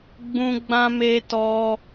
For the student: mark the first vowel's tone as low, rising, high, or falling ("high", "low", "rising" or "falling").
high